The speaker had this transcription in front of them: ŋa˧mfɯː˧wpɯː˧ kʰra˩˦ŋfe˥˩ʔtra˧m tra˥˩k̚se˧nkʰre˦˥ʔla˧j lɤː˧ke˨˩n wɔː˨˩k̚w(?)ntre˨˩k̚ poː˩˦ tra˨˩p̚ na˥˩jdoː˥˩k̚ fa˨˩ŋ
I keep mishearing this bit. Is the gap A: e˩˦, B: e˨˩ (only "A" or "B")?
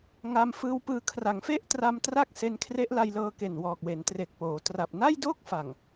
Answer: A